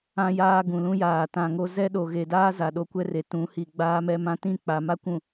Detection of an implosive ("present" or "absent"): present